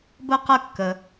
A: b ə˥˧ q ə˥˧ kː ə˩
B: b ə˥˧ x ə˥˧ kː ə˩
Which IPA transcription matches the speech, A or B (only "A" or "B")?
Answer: A